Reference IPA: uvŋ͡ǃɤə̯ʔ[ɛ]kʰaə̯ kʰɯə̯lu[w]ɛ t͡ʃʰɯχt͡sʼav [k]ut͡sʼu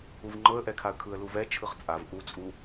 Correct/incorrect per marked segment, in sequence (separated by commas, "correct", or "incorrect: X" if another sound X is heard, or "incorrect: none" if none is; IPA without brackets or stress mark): correct, incorrect: v, incorrect: ʔ